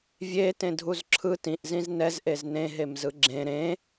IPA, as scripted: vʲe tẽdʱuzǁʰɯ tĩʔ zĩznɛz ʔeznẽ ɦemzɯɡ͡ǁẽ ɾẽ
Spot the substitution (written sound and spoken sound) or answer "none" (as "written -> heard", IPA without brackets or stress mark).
none